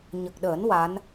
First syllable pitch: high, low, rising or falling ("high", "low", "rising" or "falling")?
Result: low